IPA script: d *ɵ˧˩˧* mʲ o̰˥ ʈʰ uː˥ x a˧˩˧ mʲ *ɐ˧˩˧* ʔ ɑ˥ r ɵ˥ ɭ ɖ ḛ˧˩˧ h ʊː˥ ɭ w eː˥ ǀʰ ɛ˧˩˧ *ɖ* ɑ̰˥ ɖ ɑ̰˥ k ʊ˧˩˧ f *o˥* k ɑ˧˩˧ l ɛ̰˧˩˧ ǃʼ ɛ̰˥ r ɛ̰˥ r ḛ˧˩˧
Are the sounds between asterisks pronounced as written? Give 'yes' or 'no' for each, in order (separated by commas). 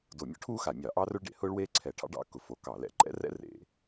no, no, no, no